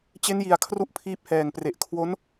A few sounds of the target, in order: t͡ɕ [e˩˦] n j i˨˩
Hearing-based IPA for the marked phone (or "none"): e˦˥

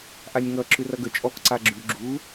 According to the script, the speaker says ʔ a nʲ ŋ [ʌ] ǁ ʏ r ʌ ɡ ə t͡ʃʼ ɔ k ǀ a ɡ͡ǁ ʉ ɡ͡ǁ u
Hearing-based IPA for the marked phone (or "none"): ʌ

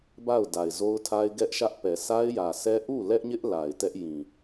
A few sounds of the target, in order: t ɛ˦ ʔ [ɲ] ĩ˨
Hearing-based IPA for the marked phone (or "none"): j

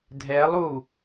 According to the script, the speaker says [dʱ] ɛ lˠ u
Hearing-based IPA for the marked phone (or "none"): dʱ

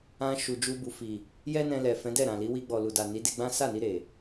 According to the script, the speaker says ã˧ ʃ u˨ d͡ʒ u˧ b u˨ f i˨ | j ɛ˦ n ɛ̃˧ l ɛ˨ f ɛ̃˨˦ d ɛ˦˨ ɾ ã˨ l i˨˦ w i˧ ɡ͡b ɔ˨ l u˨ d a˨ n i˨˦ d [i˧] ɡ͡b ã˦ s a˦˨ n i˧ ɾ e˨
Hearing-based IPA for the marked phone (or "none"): e˧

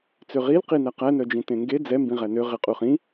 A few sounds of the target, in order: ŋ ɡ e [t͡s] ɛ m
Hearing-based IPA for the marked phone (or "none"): d͡z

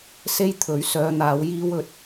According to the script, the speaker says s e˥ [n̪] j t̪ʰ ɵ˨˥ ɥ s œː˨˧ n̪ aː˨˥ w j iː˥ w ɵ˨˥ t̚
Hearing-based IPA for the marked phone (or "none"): none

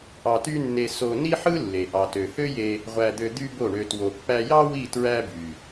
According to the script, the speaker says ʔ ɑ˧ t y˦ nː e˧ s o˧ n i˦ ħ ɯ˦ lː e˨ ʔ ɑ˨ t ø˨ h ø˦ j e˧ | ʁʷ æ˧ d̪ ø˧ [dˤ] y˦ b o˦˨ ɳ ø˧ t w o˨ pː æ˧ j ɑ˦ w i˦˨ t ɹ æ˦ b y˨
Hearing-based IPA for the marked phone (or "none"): d̪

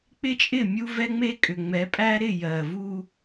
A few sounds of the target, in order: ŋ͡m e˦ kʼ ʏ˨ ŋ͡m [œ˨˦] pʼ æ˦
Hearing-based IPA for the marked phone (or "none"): ɛ˨˦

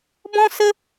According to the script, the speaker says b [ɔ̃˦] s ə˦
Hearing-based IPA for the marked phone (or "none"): ɔ̃˦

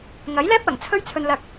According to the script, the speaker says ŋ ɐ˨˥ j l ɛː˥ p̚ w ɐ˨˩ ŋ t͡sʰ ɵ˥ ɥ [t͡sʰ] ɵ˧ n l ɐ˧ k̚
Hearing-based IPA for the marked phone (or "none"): t͡sʰ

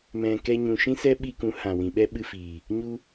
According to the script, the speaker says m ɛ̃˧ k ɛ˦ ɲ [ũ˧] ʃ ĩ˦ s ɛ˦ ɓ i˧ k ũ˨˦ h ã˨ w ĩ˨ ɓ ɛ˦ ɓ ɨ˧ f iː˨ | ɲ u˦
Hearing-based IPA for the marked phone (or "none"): ũ˧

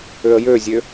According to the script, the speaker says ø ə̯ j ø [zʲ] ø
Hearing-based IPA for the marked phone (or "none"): zʲ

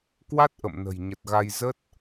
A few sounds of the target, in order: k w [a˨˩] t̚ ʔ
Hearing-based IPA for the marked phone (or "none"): a˦˥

